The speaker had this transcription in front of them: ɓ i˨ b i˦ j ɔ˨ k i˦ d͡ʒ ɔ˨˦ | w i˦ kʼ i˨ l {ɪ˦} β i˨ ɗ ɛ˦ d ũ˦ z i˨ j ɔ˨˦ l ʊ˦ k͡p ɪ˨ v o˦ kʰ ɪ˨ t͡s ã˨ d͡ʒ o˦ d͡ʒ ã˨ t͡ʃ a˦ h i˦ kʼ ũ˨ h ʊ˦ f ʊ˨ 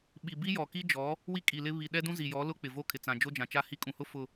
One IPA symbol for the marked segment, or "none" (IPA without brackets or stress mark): ɪ˦